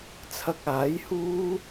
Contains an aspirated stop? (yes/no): yes